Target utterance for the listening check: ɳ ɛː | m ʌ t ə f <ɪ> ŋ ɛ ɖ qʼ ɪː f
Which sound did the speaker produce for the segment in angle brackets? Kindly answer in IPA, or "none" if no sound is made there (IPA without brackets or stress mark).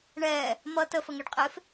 ə